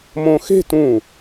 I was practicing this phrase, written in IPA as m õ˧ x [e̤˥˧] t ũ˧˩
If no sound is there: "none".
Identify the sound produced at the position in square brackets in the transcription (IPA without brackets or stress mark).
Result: e̤˥˧